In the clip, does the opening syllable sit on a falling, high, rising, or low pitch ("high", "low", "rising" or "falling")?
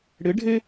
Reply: rising